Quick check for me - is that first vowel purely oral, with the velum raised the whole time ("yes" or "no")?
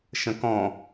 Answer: no